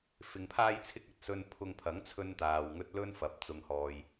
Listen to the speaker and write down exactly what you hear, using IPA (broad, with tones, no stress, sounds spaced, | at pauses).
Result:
f ɪ˧ ŋ pʰ aː˥ j t͡sʰ ɪ˥ k̚ ɐ˨ t̚ s ɵ˧ n pʰ ʊ˧ ŋ pʰ ɐ˨˥ ŋ t͡sʰ ɵ˥ n t̪ aː˧ w ŋ ɵ˥ t̚ l ɵ˥ n f ɐ˨˥ p̚ t͡s ʊ˧ ŋ h ɔː˧ j